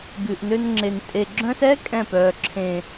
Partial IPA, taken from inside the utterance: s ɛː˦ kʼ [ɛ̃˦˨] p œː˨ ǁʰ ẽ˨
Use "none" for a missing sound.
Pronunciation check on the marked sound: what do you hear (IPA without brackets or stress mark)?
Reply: ɛ̃˦˨